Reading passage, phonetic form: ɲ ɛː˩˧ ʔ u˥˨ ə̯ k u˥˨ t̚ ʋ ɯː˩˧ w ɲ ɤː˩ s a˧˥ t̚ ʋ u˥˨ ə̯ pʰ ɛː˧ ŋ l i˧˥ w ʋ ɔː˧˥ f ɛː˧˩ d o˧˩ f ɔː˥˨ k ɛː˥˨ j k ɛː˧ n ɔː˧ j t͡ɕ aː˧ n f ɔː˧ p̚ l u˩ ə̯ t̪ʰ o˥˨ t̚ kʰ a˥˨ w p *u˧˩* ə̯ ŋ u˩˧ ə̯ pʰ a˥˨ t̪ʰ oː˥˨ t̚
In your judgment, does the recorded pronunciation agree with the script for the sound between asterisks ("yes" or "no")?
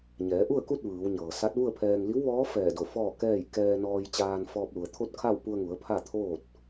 no